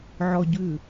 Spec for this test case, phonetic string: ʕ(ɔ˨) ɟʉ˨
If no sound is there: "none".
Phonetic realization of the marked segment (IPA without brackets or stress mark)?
ɔ˨